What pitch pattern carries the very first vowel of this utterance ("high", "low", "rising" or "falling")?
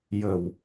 low